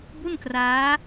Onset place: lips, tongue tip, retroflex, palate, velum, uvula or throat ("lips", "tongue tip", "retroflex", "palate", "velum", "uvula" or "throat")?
lips